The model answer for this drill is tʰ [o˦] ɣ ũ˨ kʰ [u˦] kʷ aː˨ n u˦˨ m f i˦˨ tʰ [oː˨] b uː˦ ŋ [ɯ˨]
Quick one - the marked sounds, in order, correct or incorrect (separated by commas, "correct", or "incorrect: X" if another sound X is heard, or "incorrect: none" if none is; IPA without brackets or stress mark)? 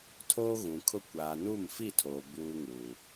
incorrect: oː˦, incorrect: ʊ˦, correct, incorrect: u˨